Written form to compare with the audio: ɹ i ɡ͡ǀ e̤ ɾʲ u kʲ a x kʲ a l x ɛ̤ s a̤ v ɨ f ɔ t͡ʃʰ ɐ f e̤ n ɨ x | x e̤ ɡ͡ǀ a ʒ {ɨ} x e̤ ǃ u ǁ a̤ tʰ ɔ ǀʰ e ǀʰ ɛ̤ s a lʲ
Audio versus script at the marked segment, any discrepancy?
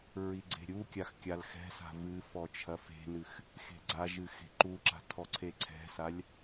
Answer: no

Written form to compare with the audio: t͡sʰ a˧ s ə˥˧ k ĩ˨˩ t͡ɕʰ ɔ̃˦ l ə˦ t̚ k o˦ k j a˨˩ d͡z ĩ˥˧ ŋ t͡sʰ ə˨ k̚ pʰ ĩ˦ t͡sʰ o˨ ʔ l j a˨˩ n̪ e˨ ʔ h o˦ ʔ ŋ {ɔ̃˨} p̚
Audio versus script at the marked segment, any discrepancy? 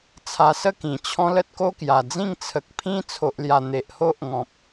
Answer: no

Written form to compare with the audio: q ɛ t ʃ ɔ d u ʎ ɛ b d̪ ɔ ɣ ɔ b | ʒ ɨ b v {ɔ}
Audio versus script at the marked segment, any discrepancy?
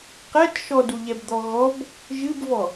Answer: no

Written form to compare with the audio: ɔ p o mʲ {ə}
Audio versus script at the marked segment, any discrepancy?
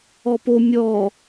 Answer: yes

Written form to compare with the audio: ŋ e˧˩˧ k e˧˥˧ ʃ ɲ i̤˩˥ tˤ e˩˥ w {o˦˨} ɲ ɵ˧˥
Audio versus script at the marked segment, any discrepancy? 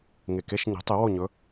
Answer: no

